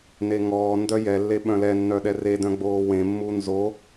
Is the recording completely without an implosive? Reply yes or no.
no